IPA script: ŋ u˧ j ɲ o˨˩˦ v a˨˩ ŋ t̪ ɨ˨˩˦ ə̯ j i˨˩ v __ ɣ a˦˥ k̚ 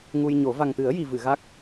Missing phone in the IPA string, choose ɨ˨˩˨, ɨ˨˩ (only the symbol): ɨ˨˩˨